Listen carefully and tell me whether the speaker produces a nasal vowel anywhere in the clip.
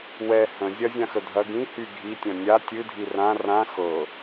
yes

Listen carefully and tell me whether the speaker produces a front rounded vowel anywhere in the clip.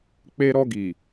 no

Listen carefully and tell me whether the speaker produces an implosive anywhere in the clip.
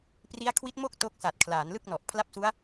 no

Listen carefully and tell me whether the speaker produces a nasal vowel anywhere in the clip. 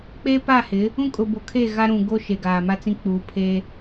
yes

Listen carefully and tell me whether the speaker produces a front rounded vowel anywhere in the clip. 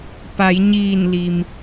no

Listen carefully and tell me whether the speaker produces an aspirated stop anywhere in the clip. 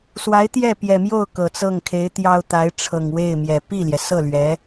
yes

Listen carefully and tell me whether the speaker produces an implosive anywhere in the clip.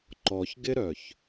no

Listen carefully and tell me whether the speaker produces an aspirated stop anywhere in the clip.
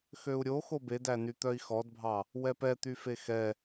no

